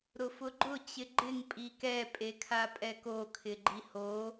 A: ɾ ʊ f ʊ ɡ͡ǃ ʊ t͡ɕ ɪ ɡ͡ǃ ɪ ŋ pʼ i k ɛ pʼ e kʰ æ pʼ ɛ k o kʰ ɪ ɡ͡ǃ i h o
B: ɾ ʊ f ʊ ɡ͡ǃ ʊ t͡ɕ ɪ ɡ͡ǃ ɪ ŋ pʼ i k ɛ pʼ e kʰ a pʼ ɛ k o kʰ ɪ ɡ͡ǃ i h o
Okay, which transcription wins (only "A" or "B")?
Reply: B